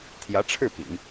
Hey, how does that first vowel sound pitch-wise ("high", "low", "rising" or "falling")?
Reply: rising